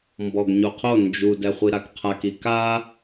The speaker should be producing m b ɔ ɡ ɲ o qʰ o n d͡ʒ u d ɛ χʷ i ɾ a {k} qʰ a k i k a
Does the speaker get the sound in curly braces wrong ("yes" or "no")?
no